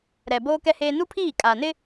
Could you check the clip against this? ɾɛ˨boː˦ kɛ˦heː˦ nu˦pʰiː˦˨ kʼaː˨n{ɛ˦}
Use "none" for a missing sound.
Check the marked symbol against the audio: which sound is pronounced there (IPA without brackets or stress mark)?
ɪ˦